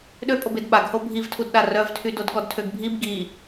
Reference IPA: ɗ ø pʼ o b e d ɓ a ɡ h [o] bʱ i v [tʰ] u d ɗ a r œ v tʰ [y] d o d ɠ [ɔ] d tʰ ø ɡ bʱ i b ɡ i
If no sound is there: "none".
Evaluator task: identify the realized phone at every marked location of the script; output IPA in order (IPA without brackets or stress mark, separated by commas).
o, tʰ, y, ɔ